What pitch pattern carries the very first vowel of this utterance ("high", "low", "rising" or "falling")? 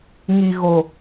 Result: low